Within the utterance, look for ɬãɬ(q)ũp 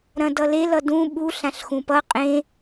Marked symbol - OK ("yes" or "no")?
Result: no